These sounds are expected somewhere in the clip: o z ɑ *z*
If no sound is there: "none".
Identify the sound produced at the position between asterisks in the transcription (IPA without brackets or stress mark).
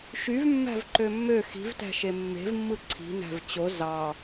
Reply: none